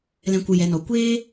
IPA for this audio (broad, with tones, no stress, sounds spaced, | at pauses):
l ɛ̃˦ kʷ ɨ˧ j ɛ˨˦ n ɔ˨ kʷ eː˦